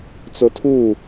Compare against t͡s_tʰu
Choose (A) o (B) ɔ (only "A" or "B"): A